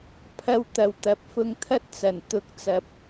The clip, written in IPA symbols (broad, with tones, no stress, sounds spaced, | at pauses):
pʰ ɐ˧ w t̪ ɐ˨ w t̪ ɐ˨˥ p̚ f ʊ˧ ŋ t̪ʰ ɐ˥ t̚ t͡s ɐ˨˩ n t̪ ʊ˨˥ k̚ t͡s ɐ˨ p̚